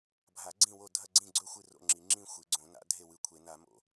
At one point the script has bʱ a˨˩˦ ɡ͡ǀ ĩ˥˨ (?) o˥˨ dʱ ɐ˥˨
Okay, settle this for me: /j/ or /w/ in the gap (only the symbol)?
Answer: w